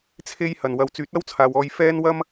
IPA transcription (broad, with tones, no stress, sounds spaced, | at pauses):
t͡sʰ e˧ j h ɐ˨˩ n w ɐ˨ w t͡s yː˨˥ t̚ ɐ˥ w t͡sʰ aː˨ w ɔː˧ j f ɛː˥ n w ɐ˥ m